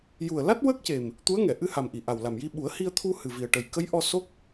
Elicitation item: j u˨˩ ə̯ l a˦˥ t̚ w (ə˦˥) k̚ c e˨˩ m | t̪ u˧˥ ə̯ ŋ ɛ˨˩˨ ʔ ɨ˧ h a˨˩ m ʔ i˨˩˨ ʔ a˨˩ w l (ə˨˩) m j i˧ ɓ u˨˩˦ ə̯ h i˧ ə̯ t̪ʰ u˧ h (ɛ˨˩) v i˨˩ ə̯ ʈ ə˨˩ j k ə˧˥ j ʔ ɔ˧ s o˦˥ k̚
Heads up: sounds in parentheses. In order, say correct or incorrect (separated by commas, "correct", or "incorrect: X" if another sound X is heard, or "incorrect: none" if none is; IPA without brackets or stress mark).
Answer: correct, incorrect: a˨˩, incorrect: ɨ˨˩